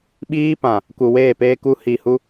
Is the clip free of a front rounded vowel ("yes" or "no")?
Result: yes